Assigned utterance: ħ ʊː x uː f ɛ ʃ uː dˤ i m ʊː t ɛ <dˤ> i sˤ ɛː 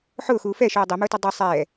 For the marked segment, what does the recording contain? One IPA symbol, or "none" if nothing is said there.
dˤ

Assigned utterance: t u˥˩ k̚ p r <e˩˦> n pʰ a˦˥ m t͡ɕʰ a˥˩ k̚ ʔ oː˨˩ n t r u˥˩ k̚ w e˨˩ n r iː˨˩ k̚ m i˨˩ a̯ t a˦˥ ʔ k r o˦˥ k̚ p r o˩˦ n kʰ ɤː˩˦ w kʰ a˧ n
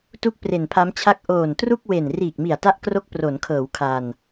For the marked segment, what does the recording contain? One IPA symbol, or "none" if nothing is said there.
e˨˩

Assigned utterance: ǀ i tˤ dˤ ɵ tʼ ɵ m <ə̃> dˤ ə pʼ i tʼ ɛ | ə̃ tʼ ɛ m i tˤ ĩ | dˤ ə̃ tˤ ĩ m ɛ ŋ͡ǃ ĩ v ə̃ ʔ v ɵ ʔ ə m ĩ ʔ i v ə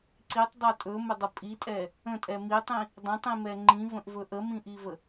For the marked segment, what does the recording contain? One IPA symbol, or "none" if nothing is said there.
ə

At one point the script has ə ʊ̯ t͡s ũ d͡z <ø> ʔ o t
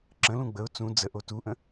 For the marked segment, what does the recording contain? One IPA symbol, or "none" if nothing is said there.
ə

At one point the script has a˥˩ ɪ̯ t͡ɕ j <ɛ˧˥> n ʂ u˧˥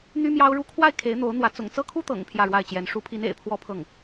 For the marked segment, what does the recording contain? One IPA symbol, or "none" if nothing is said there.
ɛ˧˥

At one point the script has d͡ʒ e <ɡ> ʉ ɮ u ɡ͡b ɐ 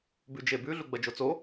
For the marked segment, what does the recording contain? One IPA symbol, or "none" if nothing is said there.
b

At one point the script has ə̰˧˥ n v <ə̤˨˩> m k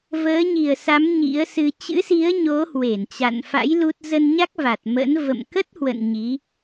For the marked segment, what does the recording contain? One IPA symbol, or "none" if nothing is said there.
ə̰˧˨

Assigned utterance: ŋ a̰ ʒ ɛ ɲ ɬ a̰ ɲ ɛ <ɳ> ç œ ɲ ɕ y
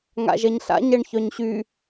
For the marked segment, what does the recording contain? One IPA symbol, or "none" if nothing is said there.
ɳ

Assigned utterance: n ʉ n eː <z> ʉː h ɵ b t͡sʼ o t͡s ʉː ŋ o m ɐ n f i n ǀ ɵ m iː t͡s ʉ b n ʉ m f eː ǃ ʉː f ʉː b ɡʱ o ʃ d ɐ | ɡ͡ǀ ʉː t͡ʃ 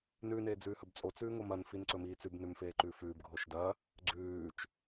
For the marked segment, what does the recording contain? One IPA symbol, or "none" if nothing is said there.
d͡z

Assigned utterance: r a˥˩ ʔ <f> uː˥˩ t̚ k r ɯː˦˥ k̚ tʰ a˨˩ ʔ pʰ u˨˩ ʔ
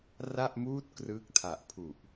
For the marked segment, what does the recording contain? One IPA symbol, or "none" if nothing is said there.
m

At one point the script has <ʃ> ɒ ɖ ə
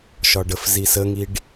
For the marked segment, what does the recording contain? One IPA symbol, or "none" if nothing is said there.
ʃ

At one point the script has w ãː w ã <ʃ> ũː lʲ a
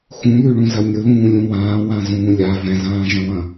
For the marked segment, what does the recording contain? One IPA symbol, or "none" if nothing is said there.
z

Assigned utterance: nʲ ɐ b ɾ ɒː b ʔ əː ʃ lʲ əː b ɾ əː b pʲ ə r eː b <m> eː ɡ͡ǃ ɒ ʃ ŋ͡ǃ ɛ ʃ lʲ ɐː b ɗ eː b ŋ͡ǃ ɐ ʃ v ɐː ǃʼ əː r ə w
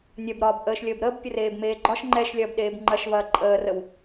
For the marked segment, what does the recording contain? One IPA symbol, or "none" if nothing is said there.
m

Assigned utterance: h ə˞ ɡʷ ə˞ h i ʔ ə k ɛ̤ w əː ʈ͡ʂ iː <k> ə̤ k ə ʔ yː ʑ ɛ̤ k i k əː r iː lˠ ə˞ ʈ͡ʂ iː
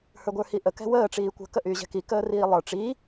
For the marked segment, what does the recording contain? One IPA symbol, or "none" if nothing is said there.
kʷ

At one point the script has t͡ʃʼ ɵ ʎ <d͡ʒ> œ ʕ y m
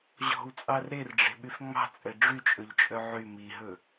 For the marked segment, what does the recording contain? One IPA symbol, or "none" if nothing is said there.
t͡ʃʼ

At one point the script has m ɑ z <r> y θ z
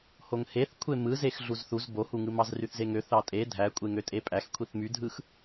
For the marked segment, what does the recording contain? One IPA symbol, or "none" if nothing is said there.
r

